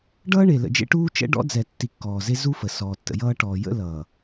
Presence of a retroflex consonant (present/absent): present